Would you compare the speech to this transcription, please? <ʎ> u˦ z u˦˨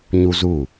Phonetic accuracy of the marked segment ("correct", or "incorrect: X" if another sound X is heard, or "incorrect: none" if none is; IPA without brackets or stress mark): incorrect: ɲ